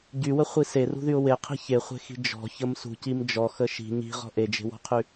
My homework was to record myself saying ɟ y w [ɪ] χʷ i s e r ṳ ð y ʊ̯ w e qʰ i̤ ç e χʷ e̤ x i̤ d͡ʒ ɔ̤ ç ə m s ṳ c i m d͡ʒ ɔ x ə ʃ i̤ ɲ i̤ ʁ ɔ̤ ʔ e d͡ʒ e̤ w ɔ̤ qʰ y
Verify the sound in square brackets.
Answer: incorrect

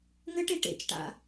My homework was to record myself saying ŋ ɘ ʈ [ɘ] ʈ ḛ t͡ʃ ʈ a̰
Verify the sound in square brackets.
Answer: incorrect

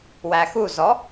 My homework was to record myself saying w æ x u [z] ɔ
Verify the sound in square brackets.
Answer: correct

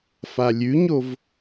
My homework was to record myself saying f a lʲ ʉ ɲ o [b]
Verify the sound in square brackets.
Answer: incorrect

